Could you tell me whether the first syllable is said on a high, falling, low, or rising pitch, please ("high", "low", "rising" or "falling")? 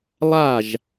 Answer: falling